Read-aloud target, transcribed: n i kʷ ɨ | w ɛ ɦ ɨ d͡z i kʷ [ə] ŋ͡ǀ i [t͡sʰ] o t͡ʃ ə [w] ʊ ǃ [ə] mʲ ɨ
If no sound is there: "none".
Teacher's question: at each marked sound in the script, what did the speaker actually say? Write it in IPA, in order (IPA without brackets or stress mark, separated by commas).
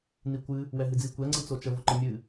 ɛ, t͡s, v, ə